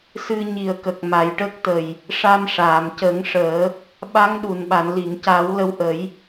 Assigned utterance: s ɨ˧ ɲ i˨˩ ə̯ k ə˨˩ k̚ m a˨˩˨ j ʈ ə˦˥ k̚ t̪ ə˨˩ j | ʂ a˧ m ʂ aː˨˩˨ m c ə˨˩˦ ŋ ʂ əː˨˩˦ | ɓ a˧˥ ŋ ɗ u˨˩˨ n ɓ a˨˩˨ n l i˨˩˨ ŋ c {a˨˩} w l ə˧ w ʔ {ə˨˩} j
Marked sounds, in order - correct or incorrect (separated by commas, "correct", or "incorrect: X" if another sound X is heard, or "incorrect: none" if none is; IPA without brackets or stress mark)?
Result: incorrect: a˨˩˦, incorrect: ə˨˩˦